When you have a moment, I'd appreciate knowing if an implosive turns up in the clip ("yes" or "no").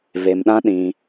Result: yes